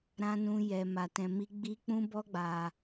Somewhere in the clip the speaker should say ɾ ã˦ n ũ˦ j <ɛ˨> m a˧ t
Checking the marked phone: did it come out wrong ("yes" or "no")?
yes